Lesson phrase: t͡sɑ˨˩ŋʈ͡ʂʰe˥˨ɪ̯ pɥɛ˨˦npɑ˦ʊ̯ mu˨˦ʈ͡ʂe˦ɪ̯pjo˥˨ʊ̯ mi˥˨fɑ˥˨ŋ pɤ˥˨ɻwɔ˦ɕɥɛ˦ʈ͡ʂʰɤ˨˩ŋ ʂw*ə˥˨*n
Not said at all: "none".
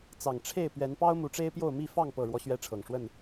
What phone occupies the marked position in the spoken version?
ə˥˨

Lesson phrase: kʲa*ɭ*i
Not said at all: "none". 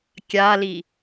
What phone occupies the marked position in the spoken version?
l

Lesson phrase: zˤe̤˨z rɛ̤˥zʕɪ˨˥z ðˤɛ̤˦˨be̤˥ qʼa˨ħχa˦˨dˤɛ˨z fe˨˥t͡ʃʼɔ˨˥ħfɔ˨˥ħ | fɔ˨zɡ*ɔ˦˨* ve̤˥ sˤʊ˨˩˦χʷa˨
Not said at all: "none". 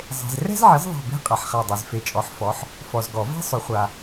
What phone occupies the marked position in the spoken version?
ɔ˨˩˦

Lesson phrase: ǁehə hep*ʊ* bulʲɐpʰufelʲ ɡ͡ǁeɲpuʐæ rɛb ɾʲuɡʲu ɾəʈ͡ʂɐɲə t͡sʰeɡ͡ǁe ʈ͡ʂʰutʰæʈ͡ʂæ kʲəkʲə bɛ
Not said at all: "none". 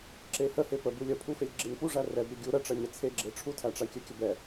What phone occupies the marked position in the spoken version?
ə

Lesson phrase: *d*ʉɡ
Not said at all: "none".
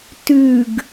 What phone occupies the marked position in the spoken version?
t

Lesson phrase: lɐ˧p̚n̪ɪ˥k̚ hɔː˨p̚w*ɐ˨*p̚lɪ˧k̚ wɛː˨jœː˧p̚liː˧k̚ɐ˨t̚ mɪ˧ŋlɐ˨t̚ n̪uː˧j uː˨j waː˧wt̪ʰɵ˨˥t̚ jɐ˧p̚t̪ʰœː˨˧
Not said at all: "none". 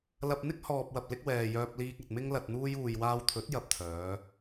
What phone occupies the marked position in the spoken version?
ɐ˨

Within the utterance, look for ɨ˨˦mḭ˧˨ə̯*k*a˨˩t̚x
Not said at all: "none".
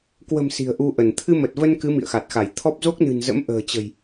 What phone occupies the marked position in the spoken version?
x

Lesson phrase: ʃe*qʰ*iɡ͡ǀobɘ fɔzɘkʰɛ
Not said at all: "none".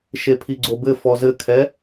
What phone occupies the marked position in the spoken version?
pʰ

